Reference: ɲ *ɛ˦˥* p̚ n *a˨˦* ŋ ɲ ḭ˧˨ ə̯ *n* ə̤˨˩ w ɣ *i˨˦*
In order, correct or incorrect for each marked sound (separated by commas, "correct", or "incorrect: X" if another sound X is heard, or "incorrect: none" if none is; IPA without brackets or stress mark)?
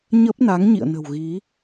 incorrect: ə˦˥, correct, correct, correct